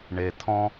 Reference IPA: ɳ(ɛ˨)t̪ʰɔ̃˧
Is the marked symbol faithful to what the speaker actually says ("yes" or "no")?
no